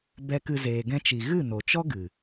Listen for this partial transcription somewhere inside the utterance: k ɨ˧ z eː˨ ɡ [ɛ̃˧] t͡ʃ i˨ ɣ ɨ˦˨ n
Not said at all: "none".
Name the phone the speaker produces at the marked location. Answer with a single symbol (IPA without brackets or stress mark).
ɛ̃˧